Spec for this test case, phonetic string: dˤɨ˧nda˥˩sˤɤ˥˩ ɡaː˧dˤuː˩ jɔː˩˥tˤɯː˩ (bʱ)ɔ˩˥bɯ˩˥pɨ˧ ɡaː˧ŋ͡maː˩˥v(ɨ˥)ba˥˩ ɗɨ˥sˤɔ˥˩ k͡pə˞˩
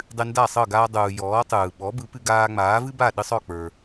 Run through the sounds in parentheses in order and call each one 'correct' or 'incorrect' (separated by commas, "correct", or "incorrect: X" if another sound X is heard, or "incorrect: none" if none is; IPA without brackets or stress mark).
incorrect: ɓ, correct